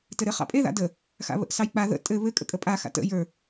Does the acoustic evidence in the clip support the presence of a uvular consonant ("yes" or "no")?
yes